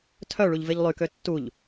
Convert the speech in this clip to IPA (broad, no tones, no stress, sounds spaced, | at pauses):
tʰ œ ɭ u ʎ v e ʎ lˠ y k ø tː u ʎ